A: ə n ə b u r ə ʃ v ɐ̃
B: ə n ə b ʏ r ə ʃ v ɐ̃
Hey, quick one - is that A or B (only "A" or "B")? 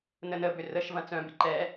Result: B